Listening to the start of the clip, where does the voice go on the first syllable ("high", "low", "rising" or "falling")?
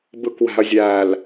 low